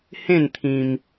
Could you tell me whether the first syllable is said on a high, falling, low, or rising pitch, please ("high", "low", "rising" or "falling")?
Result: falling